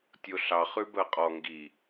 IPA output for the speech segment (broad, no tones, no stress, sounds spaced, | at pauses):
tʲ o ɬ ɑ χ ʉ b ɜ qʼ ɔ ŋ ɡ i